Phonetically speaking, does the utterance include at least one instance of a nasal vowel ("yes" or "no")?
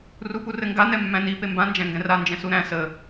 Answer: yes